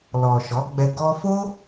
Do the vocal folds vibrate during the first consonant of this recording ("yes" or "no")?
yes